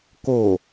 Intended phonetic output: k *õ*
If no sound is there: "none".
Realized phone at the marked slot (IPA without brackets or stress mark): o